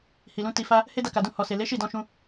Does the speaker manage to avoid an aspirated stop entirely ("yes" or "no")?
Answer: yes